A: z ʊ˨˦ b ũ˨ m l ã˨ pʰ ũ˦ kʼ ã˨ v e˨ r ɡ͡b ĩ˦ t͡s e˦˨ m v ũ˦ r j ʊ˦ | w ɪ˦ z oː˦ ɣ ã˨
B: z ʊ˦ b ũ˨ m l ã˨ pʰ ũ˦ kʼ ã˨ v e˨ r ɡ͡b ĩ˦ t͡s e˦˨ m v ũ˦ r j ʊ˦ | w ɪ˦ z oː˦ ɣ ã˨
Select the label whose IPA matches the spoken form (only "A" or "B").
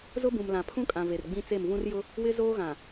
B